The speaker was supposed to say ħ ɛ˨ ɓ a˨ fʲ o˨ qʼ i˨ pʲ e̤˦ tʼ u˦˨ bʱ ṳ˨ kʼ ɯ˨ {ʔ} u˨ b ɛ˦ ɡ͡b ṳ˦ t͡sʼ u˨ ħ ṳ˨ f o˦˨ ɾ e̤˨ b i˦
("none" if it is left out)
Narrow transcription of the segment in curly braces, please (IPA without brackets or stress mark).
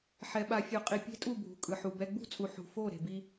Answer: ħ